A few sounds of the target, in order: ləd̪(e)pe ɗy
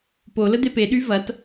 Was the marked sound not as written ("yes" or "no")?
no